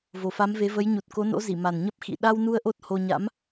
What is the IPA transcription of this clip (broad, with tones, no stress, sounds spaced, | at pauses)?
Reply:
v o˨˩ f a˨˦ m v e˨˦ v ə˨˦ j ɲ u˨˩ t̚ k o˨˦ n o̰˧˥ z i˧˩ m a˨˩ n ɲ ə˦˥ p̚ x ḭ˧˨ ɗ a˧ w n u˧ ə̯ ʔ o˦˥ t̚ h o˧ ɲ a̰˧˥ m